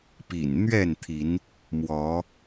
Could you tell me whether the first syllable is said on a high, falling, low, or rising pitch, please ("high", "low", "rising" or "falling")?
low